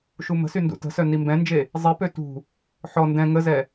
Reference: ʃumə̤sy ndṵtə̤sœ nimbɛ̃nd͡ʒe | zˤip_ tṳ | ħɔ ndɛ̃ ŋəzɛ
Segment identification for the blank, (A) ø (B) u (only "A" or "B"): A